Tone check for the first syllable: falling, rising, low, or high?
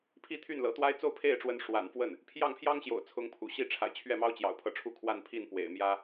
falling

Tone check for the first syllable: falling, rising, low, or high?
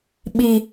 low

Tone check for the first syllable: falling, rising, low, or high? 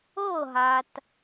falling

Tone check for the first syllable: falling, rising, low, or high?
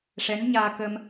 rising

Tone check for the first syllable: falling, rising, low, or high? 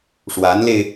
rising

